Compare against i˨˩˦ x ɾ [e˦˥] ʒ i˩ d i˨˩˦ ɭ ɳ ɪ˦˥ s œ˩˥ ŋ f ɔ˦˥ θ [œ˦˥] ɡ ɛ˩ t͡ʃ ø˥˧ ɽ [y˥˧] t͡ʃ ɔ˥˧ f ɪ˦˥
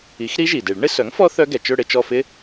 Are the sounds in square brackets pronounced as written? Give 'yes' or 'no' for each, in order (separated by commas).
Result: no, yes, no